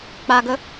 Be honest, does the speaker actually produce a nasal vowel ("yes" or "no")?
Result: no